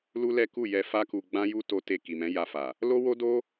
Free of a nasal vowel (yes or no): no